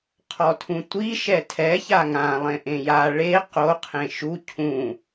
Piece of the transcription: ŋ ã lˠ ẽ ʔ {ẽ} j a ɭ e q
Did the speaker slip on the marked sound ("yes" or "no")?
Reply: no